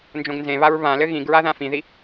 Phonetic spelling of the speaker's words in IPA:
nd͡ʒõɡnzẽβaɹ βãlɘ ɣĩɡɹa ðãfĩði

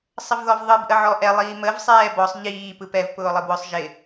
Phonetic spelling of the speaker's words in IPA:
sˤəvðɔvðˤɯb ʔəʕɔʔɛ lˠiːməv sˤɛːbɔsˤ ʎiː pɯpɛv pʊːlˠəbwʊsˤ ʒɪ

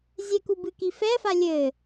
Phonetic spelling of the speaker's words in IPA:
zʲɛku bɨkifɛfa lʲɘ

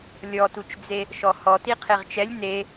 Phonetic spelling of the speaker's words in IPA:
lʲɔtut͡ʃd͡ze | ʃɔhɔti qʰeʁt͡ʃɛlʲ ne

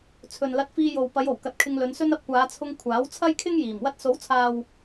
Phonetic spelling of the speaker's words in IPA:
t͡sʰɵ˨nlɐ˧t̚fiː˧jo˨w pɐ˨˧jo˨˩w kɐ˨t̚kʰɪ˧ŋlɵ˨˧nsɵ˥n ɐ˧p̚kʷaː˨˧t͡sʰʊ˧ŋ kʷʰaː˨˥wt͡sʰɐ˥jkʰɪ˥ŋjiː˨˩m wɐ˧t̚so˨˥wt͡sʰaː˨w

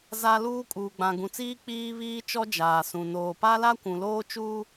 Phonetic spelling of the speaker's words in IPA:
za˦luː˦ kʼuː˨ɡ͡bã˨ɡũ˨t͡siː˦ k͡piː˦βiː˦t͡ʃɔ˦ d͡ʒaː˨sũ˨ noː˨pa˦la˦ kʷũ˨loː˦t͡ʃuː˦

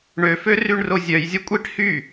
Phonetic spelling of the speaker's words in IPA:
ɳøfø ryɳrozʲœjzʲɐ kʷʼiʈ hy

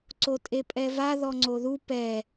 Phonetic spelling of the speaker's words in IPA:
ǀotʼepʼɛva ðɔŋ͡ǀoðu pɛ

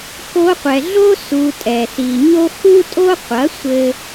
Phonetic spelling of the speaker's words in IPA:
ko˧qʷɛ˨ɮo˦ su˧tʼɛ˨ si˨ɲo˦ xu˦tʼo˦qʷɐ˨˦ sʷɘ˦

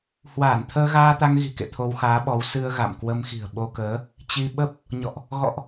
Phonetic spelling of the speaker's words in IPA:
hwaː˧˩nt̪ʰəː˧ɣaː˧ t̪a˧ŋɣi̤˨˩kḛ˧˨ t̪ʰo˧wxaː˨˦ɓɔ˨˦w sɨ˧ə̯ ɣa̰˧˨m kwə˧mxi̤˨˩ə̯ɓo˧kəː˨˦ | t͡ɕi˧ ɓə˦˥p̚ | ɲɔ̰˧˨ʔ | ɣɔ̰˧˨ʔ

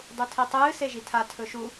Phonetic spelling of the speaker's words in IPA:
dˤutʰitˤɨː seʒitʰa tʰɵʃu

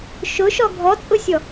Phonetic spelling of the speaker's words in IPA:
ʃʊʃɔ ɡʱɔt͡sʼʊsʲɔ

